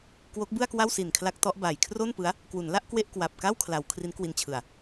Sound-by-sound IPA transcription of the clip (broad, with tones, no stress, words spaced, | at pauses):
kwo˦˥k̚ bɯ˥˩a̯kwa˥˩wsi˨˩n kʰla˦˥k̚tɔ˦˥ʔba˨˩j kʰro˥˩npɯ˦˥a̯ | kwu˩˦nla˥˩ʔ kwe˥˩ʔkwa˨˩p̚ka˥˩w kʰla˩˦w kʰri˦˥nkwi˧nt͡ɕʰɯ˨˩a̯